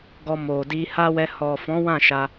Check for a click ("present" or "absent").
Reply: absent